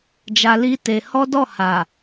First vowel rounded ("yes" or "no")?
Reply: no